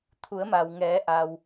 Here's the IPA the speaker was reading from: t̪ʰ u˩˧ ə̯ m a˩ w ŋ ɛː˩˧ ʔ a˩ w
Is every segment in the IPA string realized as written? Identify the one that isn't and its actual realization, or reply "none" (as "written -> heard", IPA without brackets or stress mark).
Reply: none